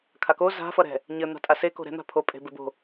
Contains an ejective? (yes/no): yes